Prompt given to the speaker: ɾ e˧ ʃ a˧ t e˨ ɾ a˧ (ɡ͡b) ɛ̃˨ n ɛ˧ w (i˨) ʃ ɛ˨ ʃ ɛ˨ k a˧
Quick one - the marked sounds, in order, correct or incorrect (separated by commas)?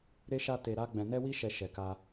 correct, incorrect